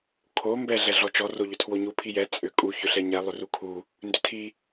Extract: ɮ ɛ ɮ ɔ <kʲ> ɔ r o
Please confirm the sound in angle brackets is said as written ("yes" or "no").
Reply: no